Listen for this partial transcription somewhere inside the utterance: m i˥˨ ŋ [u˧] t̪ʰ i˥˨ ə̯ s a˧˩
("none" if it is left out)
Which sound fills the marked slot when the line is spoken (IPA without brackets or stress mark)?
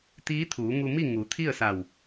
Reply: u˩˧